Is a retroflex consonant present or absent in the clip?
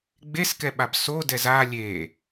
absent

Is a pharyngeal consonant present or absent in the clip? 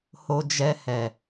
absent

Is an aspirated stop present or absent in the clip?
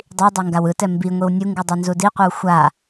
absent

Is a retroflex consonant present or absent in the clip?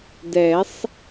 absent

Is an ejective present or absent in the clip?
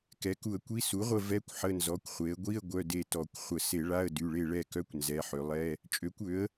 present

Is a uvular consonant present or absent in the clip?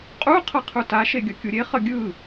present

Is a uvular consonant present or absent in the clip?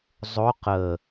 present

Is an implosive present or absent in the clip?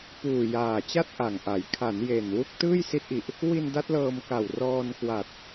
absent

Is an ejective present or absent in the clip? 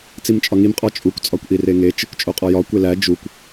present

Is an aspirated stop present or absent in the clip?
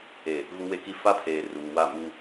present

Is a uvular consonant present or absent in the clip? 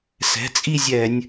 absent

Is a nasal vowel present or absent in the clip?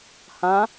present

